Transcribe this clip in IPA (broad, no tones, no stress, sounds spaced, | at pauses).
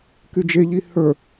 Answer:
k y d͡ʒ e ʎ i h ə˞